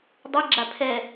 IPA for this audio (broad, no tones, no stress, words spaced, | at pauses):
dˤɛɡ͡ǁa pʰɛ